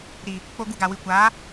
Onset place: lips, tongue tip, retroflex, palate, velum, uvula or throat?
tongue tip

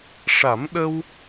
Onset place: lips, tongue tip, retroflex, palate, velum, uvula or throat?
retroflex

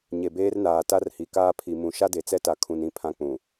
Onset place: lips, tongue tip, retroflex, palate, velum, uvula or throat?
palate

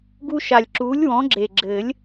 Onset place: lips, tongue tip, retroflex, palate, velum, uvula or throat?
velum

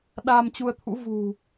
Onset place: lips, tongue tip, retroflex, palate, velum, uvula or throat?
tongue tip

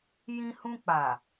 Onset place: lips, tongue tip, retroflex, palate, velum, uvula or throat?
palate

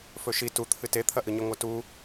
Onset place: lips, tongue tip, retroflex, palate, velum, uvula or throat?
lips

